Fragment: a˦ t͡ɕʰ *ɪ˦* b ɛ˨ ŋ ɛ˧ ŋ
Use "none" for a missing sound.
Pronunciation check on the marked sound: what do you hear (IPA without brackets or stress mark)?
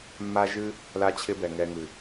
ɪ˦